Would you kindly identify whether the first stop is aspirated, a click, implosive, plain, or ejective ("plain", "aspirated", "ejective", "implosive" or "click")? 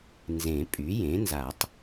ejective